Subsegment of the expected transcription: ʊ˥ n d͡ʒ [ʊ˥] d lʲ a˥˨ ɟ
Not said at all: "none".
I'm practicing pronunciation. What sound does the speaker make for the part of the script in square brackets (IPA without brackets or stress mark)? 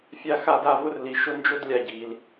ʊ˥